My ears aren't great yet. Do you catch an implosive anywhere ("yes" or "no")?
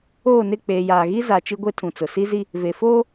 no